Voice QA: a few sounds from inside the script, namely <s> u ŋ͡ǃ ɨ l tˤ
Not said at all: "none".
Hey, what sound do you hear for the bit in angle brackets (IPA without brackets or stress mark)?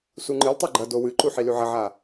s